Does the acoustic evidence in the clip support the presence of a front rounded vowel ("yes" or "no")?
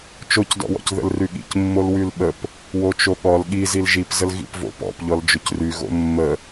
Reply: yes